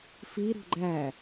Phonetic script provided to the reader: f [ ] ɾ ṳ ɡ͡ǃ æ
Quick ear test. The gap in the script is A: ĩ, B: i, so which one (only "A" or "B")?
B